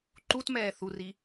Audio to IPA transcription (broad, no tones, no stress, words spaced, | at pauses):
ǃutmɛː θuri